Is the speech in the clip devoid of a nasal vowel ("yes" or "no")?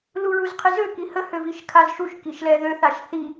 yes